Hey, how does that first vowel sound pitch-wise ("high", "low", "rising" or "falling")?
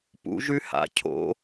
rising